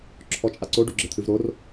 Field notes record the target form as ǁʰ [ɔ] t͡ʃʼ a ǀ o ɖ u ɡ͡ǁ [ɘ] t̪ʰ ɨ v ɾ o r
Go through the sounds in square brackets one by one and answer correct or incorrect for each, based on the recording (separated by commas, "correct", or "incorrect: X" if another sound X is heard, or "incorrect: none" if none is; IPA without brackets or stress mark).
correct, correct